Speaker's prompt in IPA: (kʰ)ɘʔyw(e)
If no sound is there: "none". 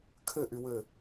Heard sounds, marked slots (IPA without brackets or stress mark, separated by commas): kʰ, ɘ